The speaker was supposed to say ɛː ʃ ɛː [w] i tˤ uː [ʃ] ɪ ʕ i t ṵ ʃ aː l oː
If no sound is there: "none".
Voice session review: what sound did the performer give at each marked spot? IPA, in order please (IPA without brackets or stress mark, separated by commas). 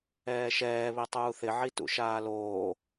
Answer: β, θ